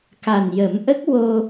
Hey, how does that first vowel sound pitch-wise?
low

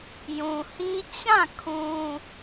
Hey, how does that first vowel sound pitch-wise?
low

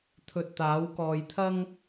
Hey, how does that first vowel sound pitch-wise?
low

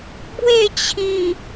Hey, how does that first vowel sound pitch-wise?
falling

